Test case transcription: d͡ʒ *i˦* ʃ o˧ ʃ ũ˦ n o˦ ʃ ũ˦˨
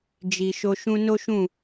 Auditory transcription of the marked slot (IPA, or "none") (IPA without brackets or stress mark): i˨